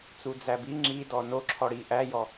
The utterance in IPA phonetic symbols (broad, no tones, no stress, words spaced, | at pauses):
t͡sud͡zæbi ŋ͡ǁi dɔno ǁʰɔɽi ʔæjɔ